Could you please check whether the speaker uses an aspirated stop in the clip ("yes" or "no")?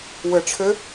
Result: yes